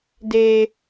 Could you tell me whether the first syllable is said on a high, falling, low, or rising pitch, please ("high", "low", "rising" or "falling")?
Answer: high